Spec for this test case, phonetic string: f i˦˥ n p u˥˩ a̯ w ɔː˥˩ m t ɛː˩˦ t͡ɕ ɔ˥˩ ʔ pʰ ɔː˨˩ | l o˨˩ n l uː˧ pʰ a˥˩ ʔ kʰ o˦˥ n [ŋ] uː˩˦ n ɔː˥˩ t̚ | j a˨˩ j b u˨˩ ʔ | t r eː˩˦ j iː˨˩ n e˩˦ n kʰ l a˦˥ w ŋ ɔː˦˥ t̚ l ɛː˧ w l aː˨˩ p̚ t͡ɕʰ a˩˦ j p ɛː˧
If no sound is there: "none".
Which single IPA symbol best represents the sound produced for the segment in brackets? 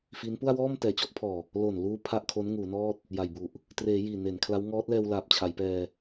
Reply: ŋ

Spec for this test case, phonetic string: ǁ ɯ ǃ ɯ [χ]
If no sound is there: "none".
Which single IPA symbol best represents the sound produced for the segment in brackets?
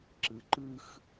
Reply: x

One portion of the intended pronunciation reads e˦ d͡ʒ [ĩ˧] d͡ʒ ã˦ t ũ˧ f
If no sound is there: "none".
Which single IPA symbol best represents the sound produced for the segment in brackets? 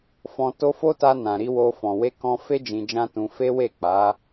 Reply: ĩ˧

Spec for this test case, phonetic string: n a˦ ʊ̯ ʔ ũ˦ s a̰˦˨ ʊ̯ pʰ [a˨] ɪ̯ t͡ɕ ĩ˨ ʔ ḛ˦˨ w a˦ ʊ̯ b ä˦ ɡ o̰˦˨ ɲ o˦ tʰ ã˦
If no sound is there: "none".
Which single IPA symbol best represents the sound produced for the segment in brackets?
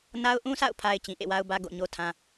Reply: a˨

